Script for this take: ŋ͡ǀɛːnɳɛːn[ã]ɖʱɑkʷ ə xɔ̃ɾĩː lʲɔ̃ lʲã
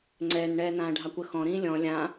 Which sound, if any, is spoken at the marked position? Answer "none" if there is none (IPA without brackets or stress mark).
ãː